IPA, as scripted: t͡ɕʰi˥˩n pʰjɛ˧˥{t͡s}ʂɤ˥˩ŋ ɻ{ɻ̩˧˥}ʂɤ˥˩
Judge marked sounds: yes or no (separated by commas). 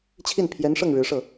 no, yes